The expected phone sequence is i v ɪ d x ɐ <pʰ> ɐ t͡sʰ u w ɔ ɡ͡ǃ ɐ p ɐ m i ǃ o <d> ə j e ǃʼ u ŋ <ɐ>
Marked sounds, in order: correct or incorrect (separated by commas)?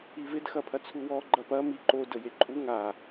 correct, correct, incorrect